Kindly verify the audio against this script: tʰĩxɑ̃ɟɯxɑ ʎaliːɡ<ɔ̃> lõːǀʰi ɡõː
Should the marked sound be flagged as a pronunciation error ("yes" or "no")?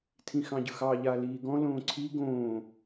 no